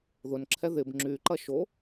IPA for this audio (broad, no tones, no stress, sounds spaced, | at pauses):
ð ʊ n ǁʰ ɛ ð ɪ b ŋ͡ǁ y ǃ ɐ ʃ o